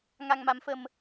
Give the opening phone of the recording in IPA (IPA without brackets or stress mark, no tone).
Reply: ŋ